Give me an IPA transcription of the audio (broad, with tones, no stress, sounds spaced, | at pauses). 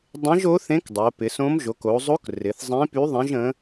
dˤ ẽ˧˥ ʒ o˧˥ θ ẽ˧˥ k dˤ o˩˧ p ɪ˩˧ s õ˧˥ m ʒ o˩˧ k o˩˧ zˤ o˧˥ k r ɪ˩˧ θ zˤ ẽ˧˥ p y˧˥ ðˤ ẽ˧˥ ʒ ə̃˧˥